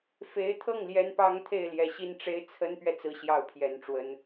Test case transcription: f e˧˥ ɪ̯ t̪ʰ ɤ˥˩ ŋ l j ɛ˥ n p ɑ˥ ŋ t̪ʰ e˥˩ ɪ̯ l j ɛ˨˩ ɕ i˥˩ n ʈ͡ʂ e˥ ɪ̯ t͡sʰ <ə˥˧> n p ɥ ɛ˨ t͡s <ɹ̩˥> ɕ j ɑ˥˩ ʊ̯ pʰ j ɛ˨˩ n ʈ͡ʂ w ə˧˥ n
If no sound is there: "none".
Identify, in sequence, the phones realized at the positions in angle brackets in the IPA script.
ə˥, ɹ̩˥

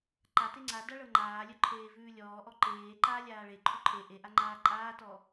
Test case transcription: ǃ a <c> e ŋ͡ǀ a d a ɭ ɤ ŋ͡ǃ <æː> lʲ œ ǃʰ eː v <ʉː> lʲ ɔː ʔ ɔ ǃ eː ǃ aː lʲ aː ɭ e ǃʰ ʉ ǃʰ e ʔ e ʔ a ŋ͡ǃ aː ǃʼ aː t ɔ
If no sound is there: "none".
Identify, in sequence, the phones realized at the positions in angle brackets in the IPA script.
t, aː, ʉː

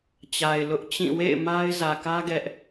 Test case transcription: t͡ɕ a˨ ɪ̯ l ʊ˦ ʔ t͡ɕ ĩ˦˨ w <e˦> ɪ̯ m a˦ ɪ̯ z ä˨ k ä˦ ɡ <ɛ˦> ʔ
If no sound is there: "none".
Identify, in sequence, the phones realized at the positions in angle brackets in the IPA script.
ḛ˦˨, ɛ˦

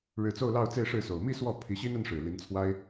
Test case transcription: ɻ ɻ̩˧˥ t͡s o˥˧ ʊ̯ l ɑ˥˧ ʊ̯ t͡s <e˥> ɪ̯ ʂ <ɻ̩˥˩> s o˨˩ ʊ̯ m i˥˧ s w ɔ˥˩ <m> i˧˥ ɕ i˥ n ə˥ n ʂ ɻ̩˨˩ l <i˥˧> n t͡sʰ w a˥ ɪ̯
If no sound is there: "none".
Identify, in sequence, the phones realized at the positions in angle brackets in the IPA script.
e˥˧, ɻ̩˥˩, pʰ, i˧˥

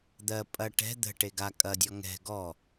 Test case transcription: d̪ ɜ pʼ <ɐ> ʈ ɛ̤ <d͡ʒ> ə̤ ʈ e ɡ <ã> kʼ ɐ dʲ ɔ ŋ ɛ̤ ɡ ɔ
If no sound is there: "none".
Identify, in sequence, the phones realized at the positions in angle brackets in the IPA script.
ɐ, d̪, a

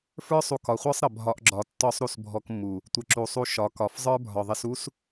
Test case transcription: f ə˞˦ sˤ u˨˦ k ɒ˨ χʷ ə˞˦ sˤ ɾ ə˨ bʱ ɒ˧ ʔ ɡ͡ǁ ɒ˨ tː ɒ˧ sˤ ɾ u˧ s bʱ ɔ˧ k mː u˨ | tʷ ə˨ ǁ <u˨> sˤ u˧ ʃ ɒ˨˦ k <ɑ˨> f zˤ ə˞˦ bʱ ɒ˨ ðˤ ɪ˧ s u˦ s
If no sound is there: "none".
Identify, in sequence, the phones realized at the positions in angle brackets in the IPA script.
u˨, ɒ˨

